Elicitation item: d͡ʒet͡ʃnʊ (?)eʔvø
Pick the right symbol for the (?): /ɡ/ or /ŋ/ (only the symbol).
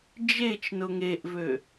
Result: ŋ